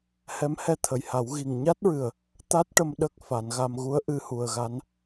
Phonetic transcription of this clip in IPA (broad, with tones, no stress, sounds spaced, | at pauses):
h ɛ˧˥ m h ɛ˧ t̪ʰ ə˨˩ j h a˨˩˦ w ɣ i˨˩ ŋ ɲ a˦˥ t̚ ɹ ɨ˨˩ ə̯ | t̪ a˦˥ t̚ ʈ ə˧ m ɗ ə˦˥ k̚ f a˨˩˦ n ɣ a˧ m ɣ u˧˥ ə̯ ʔ ɨ˧ h u˨˩ ə̯ ɣ a˧˥ n